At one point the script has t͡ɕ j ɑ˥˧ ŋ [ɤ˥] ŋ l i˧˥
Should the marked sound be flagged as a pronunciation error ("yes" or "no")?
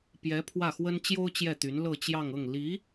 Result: yes